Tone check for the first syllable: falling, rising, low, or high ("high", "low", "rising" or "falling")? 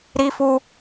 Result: high